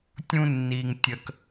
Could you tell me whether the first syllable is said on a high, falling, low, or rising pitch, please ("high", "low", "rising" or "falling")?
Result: high